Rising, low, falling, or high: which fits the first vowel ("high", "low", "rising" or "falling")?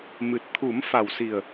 low